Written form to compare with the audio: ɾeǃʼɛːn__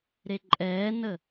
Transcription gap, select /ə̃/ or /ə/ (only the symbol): ə